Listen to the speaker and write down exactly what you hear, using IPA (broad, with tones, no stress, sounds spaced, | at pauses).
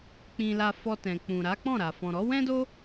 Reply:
k͡p ĩ˧ l a˧ f ɔ˧ t ɛ̃˨ k͡p ũ˨ ɾ a˨˦ k͡p ɔ̃˦˨ ɾ a˨ f ɔ̃˨ ɾ ɔ˨˦ w ɛ̃˦ d o˦